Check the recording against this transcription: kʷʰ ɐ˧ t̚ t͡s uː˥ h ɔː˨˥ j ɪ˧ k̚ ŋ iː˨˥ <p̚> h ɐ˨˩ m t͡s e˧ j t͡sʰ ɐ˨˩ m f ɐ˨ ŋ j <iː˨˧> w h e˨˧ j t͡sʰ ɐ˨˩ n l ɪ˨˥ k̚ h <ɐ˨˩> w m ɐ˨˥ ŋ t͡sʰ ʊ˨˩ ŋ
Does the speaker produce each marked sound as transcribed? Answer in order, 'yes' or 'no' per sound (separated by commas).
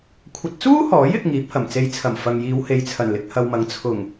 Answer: yes, yes, no